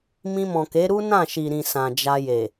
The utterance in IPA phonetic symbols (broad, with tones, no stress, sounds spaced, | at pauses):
m ĩ˧ m ɔ̃˨ k e˨˦ ɾ u˦ n ã˦˨ ʃ i˨ ɾ ĩ˨ s ã˨ d͡ʒ a˧ j e˨